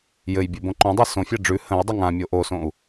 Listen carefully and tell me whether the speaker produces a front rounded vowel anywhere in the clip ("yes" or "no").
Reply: no